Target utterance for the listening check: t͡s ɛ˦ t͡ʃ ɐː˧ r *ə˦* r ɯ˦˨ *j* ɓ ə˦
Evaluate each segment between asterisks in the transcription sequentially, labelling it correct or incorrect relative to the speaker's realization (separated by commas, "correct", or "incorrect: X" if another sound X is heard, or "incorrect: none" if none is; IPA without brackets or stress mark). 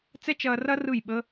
incorrect: ɐ˦, correct